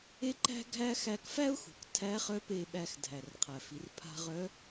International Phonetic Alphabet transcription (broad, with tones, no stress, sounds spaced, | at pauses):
e˥ ǃ æ̤˥ ɡʱ æ˥ x æ˧ k f æ˥ ʊ̯ x ṳ˩ k tʰ æ˧˥ χ œ˧˥ p e˧ ɓ æ˧ x dʱ æ˩ r qʰ æ˩ f i˩˧ r pʰ a̤˧ ʁ œ˧˥